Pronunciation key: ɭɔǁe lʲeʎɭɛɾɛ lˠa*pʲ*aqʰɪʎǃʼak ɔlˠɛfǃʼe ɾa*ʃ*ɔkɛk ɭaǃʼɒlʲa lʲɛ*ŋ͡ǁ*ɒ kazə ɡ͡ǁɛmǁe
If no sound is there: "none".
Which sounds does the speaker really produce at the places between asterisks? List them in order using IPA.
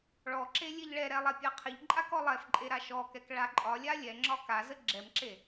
pʲ, ʃ, ŋ͡ǁ

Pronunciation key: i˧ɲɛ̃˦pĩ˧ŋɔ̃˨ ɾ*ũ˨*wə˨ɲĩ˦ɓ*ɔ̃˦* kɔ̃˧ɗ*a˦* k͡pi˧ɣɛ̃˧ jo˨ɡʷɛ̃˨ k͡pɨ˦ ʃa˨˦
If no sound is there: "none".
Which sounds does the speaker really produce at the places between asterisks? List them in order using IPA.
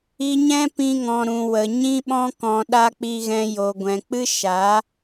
ũ˨, ɔ̃˦, a˦

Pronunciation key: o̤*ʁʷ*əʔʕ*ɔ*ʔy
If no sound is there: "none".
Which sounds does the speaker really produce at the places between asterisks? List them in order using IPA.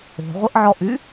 ʁʷ, ɔ

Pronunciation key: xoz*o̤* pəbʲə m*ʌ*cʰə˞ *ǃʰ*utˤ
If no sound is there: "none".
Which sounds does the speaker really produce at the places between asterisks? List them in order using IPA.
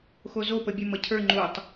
o, ʌ, ŋ͡ǃ

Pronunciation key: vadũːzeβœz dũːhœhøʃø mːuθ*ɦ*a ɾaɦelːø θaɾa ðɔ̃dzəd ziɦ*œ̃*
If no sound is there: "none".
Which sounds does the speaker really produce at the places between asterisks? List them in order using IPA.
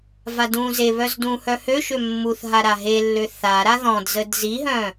ɦ, œ̃

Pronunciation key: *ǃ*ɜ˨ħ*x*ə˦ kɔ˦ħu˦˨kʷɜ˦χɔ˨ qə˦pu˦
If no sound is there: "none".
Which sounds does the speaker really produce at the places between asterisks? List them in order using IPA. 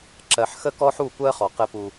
ǁ, x

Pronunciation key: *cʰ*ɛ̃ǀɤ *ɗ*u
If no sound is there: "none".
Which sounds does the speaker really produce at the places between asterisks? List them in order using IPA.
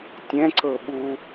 tʲ, ɓ

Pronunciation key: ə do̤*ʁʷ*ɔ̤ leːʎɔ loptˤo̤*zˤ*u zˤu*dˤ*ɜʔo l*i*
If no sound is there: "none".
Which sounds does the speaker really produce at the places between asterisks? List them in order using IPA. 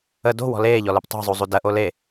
w, zˤ, d, e

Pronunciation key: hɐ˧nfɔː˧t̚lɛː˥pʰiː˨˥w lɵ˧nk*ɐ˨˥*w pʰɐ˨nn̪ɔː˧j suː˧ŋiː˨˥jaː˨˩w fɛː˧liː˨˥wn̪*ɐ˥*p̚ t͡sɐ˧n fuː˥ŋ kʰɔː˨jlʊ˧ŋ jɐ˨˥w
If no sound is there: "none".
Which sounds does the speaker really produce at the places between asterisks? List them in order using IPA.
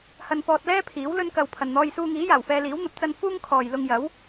ɐ˨, ɐ˨˥

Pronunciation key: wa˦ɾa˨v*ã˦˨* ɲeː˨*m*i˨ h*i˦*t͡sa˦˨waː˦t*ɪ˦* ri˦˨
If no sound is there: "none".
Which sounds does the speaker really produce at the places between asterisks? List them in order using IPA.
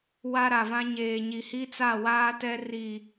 ã˦, ɲ, i˦, ɛ˦

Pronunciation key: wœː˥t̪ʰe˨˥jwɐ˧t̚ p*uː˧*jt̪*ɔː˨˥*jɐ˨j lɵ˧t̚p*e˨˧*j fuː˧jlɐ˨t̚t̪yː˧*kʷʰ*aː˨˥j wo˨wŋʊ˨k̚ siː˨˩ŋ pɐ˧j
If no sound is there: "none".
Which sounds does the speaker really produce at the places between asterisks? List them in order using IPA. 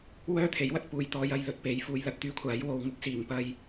uː˨, ɔː˨˧, e˨˧, kʷʰ

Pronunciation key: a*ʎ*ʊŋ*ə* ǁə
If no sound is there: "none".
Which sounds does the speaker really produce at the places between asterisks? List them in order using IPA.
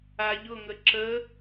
ʎ, ə

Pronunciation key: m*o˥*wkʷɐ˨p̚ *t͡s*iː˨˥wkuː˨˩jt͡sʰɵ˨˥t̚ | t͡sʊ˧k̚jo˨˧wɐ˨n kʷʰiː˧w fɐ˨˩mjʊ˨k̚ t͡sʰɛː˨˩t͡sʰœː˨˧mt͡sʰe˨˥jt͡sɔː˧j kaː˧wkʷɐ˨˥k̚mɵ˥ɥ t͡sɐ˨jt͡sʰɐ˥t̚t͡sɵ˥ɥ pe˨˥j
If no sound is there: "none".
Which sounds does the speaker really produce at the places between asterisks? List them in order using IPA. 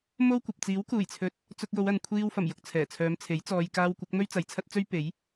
o˥, t͡s

